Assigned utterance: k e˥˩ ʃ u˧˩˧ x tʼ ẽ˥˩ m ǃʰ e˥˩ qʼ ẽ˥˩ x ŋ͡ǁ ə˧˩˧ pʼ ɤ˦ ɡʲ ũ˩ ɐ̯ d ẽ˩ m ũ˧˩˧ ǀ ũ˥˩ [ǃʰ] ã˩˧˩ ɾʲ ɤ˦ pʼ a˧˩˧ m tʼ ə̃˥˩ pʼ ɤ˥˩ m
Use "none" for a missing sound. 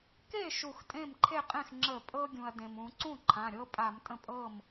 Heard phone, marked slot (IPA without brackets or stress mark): ǃʰ